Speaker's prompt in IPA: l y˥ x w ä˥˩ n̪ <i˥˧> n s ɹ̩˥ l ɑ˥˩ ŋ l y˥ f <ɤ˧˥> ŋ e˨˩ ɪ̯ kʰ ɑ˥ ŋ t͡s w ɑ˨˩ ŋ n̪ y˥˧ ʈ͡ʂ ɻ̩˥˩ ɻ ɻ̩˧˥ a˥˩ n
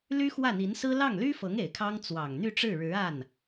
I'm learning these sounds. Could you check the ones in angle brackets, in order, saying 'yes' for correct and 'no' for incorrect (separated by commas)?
no, yes